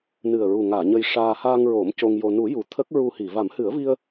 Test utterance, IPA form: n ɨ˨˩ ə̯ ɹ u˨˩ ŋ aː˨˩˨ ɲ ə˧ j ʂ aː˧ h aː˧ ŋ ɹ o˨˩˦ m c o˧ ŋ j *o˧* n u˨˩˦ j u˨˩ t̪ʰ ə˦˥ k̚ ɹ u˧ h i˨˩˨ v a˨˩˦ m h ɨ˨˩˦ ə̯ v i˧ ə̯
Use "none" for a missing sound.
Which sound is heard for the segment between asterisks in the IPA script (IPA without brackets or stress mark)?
o˧